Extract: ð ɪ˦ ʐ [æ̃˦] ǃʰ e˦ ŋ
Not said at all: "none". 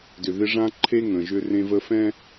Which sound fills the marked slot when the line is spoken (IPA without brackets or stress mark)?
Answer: ã˦